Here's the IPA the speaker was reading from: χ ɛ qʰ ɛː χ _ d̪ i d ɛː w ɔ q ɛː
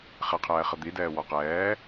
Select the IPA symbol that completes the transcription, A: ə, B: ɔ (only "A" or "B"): A